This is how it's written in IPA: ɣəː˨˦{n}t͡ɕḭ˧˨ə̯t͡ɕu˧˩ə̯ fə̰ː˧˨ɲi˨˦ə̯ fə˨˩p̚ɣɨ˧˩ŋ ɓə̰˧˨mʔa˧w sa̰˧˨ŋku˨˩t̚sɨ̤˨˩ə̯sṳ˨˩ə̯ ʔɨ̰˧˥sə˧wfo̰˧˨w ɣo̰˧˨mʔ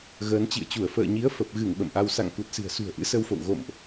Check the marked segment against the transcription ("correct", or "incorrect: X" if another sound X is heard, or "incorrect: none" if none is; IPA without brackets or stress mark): correct